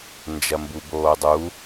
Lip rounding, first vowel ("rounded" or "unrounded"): unrounded